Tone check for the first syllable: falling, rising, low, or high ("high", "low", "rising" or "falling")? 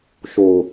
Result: low